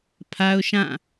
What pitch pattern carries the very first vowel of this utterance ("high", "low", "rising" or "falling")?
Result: high